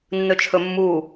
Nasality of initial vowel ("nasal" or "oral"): oral